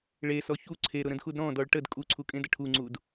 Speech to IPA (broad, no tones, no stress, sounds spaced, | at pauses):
ɭ e s ɔ ç u ǀʰ e ɾ ʊ ɾ ə̃ d x u d ɾ ɔ̃ d ɔ ɭ ʈ ə d kʼ u ǀʰ u kʼ ẽ d ə ʈʰ u ŋ͡ǀ u d